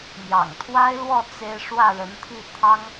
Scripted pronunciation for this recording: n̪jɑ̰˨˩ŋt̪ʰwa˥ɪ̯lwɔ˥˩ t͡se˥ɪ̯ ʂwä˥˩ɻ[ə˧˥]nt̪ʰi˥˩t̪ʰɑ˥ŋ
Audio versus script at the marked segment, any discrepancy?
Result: no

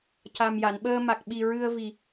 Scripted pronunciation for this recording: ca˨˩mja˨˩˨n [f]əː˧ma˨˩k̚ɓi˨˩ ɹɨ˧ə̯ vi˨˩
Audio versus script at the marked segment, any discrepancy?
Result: yes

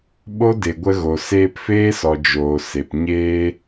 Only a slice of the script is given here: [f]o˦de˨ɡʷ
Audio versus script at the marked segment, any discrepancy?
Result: yes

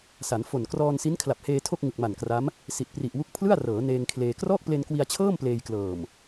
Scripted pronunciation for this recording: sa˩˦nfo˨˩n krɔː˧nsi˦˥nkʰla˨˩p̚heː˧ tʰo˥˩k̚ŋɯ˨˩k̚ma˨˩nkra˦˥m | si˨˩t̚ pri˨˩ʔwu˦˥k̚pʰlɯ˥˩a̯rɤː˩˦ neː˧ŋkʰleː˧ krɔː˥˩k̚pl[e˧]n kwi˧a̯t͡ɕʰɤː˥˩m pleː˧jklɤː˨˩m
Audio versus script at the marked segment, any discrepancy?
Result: no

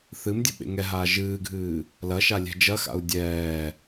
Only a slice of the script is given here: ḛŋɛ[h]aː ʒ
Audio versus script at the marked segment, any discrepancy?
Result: yes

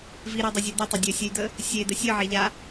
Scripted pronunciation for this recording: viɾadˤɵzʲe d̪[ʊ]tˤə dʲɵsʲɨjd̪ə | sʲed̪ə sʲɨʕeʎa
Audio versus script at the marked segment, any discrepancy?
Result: yes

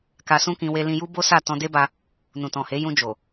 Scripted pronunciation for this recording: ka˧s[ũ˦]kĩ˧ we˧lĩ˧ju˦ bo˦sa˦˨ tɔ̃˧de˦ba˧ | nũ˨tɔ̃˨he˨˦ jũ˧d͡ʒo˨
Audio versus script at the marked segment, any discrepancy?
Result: no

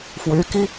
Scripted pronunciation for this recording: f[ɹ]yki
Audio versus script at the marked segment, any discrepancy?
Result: yes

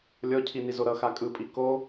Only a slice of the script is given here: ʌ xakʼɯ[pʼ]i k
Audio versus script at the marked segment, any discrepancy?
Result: no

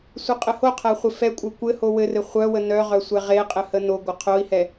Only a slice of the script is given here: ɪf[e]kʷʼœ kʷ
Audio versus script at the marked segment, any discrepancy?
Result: yes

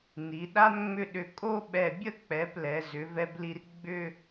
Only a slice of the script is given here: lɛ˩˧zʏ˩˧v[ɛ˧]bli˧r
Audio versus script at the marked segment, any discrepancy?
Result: no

